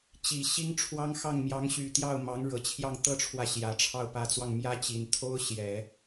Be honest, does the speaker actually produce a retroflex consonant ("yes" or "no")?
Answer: yes